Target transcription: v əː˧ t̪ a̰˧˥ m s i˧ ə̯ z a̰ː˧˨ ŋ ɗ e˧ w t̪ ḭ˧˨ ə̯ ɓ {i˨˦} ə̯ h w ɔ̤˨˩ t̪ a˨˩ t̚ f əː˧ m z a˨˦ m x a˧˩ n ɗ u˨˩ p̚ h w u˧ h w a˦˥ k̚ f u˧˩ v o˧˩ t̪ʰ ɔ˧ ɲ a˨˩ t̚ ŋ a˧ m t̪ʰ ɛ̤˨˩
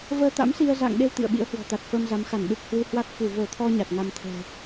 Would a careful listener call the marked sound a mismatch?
yes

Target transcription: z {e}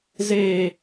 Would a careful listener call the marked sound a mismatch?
no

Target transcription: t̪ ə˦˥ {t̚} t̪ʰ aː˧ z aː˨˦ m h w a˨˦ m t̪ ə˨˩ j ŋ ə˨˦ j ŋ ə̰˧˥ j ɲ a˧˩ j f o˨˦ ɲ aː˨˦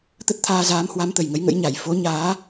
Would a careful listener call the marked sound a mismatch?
no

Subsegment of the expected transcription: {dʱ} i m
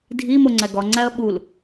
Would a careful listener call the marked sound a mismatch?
no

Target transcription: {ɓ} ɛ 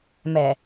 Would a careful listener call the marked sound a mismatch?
yes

